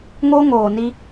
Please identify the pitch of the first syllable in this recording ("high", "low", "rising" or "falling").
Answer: high